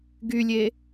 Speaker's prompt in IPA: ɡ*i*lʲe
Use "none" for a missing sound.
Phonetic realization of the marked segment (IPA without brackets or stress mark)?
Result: y